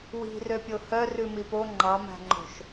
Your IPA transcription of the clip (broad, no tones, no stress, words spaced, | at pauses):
wi̤røpʲo hœ rʉmipo ŋ͡ǃɑmæ̤ŋ͡ǃo̤ʃ